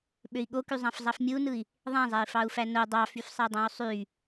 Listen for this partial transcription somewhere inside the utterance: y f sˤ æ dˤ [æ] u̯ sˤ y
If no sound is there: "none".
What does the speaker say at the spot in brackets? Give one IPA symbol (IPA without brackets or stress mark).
æ̃